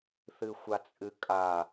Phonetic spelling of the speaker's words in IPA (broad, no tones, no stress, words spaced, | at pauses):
θɨxʷat͡sʼɨkʼa